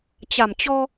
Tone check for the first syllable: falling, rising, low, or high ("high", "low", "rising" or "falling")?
low